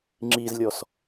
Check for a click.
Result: present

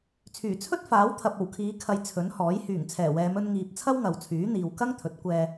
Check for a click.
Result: absent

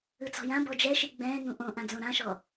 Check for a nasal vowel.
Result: present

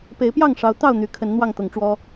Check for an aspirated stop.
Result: present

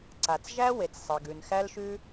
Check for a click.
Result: present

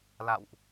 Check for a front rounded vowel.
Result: absent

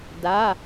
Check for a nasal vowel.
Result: absent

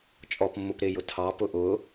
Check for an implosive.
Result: absent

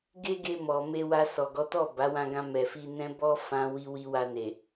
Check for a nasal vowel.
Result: present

